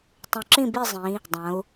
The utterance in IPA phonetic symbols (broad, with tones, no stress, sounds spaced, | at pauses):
tˤ ũ˨˩ ǁ ĩ˦˨ b i˦˨ zˤ ĩ˩˧ | dˤ ɐ̃˩˧ u̯